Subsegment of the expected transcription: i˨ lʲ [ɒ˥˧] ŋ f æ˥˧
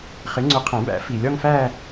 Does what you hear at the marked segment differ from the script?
no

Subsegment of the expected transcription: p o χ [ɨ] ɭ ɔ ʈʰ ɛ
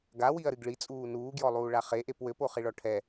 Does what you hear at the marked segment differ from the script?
yes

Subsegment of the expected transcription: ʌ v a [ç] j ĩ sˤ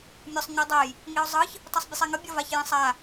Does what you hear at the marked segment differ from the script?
no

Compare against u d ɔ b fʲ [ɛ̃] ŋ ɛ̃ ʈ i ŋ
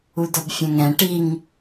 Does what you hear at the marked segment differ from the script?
no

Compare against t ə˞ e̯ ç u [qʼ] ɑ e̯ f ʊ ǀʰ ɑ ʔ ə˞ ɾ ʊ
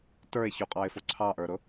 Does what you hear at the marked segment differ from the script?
no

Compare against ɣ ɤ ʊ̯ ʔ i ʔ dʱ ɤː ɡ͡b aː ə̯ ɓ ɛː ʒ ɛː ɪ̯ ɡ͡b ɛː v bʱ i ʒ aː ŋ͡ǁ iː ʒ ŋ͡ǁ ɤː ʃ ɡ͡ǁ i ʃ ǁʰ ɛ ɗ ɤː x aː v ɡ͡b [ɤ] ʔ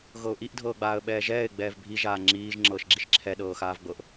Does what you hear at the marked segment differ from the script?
no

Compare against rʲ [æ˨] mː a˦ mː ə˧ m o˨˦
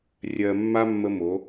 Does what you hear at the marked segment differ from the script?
yes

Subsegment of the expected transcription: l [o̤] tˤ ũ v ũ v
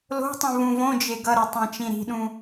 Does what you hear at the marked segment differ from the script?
no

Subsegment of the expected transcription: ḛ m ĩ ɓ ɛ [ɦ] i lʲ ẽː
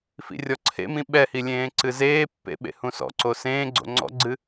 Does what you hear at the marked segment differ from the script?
yes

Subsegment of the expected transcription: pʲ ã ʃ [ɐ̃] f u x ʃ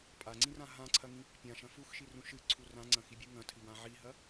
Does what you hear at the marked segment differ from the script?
no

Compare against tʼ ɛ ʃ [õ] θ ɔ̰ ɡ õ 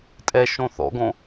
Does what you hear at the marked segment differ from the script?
no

